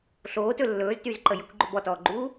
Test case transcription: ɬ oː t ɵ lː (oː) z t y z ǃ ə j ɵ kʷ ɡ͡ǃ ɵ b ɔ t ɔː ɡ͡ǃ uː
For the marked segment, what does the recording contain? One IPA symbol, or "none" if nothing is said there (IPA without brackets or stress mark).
ɵː